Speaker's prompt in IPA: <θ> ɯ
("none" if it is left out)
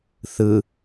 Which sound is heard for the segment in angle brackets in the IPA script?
θ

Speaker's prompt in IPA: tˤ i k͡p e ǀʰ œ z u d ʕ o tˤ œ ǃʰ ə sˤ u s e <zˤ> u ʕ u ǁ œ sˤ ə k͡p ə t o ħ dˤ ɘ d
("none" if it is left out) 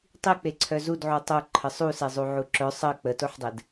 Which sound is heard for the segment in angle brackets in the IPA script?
zˤ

